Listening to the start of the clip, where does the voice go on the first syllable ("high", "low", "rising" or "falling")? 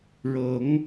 rising